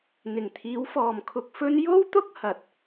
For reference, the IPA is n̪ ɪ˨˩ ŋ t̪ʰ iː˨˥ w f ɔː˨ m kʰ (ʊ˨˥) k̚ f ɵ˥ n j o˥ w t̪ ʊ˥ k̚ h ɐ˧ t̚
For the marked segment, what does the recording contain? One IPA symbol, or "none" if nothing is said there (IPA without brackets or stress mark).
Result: ʊ˧